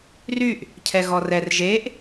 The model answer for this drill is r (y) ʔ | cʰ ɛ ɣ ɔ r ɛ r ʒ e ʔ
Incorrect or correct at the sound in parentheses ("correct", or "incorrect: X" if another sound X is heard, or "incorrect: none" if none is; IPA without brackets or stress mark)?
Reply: correct